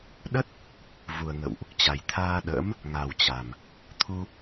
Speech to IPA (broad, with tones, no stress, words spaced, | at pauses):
ɗə˦˥t̚ | vu˨˩ə̯ŋə̰˧˨wʔ | t͡ɕa˨˩jt̪ʰaː˧ɗə̰ː˧˥m | ŋa˨˩wt͡ɕa˨˩m | t̪ʰu˧